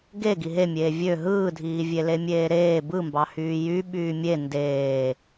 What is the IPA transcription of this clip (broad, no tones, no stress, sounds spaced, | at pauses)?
ɡ e ɡ i ɦ e mʲ eː vʲ ø ɦ ɯː dʱ iː vʲ e l e mʲ eː ɾ eː b ɯ m b ɑ h yː j y ɓ yː mʲ e n d eː